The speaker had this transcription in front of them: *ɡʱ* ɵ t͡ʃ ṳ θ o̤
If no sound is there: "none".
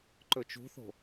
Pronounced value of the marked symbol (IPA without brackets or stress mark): ǃ